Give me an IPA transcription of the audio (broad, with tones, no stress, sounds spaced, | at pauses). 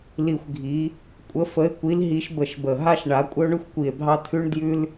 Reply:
l i˧˩ xʷ ɡʱ i˨˥ | kʷʼ ə˨˥ f ə˨˥ e̯ kʷ i˨˥ l ɦ i˨˥ ʃ b ə˧˩ ʃ b ə˧˩ ɦ a˥ ʃ ɳ a˨˥ kʷʼ ə˥ o̯ ɳ ʉ˥ xʷ kʷ i˧˩ e̯ bʱ ɑ˥ t̪ʰ ʉ˥ ɳ d j ʉ˥ l